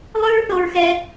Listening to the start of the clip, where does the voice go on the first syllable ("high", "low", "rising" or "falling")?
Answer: high